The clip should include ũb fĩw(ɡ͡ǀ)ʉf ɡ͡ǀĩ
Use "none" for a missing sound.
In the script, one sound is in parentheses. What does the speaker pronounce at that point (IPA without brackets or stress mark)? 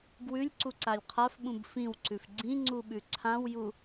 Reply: ǀ